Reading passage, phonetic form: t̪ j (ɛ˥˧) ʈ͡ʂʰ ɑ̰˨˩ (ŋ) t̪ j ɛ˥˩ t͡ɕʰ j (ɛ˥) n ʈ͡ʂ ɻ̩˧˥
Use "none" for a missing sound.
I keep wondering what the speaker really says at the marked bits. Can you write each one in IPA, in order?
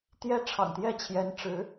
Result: ɛ˥, ŋ, ɛ˧˥

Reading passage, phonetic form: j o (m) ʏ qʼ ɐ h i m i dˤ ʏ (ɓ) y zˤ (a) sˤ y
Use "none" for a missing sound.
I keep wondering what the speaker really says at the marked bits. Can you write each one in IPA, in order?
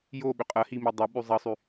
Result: ɓ, ɓ, ɐ

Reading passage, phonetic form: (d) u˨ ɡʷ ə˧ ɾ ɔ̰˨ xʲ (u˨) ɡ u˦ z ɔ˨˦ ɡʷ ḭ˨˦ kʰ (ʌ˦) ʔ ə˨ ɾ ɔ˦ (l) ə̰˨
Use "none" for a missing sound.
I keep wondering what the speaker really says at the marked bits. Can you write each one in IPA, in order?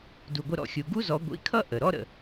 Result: d, u˨, ʌ˦, ɾ

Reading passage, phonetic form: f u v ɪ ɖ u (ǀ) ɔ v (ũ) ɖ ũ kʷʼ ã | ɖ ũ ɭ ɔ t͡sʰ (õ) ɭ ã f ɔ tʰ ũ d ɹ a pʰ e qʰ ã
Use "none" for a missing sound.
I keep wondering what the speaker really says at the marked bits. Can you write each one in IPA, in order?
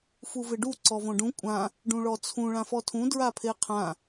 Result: ǀ, õ, ũ

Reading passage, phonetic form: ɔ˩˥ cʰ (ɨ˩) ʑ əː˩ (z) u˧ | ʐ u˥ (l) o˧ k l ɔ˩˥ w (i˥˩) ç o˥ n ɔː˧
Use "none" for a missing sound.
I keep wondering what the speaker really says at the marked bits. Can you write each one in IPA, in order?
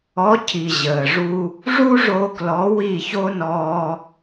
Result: i˩, ʐ, ʐ, i˥˩

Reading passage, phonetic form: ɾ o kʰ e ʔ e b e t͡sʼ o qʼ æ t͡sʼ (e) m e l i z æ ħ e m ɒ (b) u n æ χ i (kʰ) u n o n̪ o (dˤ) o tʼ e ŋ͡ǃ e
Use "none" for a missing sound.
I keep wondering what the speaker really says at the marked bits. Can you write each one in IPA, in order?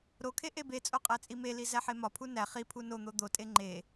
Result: i, pʰ, pʰ, d̪

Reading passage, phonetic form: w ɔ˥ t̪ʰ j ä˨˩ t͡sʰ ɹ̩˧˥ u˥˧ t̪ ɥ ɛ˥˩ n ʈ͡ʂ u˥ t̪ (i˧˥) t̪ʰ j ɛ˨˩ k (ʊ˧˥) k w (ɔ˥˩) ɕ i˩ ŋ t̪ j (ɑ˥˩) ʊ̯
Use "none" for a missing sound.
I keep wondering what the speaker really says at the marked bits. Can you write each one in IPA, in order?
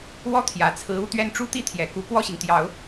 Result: i˥˩, u˧˥, ɔ˥˩, ɑ˨˩˦

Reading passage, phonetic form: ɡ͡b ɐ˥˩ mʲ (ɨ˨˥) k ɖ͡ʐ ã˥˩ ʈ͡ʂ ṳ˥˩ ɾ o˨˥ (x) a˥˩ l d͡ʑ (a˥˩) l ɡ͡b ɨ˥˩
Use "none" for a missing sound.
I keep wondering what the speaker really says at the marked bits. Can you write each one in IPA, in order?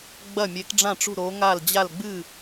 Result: e˨˥, ŋ, a˥˩

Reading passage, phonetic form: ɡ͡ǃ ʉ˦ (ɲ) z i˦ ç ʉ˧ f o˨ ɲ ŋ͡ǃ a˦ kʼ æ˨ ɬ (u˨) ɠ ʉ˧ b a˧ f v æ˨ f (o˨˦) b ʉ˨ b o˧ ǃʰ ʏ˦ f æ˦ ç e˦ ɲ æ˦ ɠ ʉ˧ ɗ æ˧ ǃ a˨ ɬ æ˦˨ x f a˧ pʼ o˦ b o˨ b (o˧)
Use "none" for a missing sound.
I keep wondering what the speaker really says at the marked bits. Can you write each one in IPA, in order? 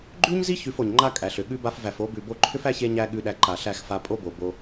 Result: ɲ, ʏ˨, o˨˦, o˧

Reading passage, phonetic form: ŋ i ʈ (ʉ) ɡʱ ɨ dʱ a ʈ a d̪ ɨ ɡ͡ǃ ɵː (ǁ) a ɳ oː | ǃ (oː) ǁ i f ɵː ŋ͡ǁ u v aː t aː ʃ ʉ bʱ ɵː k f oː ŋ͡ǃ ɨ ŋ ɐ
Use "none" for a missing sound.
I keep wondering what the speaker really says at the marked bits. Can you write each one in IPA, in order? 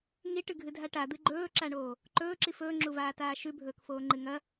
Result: ɨ, ǁ, ɵː

